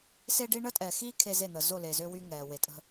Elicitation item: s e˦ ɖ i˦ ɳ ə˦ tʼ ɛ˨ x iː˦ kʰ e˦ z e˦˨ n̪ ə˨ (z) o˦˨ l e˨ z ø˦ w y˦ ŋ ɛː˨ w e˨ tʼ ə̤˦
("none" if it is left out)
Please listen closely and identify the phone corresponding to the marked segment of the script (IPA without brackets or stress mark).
z